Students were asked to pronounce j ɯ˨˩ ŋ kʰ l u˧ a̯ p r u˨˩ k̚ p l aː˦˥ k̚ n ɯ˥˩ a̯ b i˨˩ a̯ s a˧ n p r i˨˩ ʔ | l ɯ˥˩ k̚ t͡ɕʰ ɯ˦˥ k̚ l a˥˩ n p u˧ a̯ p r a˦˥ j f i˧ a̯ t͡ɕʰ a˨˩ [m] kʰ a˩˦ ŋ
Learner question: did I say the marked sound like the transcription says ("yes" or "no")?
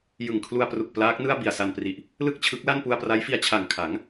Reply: no